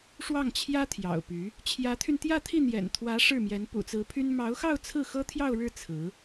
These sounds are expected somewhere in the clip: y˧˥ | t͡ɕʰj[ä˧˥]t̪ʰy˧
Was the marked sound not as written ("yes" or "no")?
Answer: no